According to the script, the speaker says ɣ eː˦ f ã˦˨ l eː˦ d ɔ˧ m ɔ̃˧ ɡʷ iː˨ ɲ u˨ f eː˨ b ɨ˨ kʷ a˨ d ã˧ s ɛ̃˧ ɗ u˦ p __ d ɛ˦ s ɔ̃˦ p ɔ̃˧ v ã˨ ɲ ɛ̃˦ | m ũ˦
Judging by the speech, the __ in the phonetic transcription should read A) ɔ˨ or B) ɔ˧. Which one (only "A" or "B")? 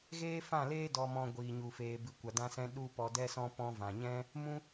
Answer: B